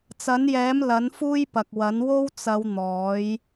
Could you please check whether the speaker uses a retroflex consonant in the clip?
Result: no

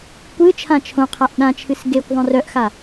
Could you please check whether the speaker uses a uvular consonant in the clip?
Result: yes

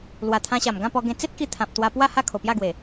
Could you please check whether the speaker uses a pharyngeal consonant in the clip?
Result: no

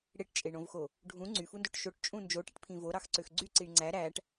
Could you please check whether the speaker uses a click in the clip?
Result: yes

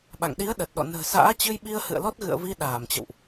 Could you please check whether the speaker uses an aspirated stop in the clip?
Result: no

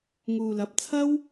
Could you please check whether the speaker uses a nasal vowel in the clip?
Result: no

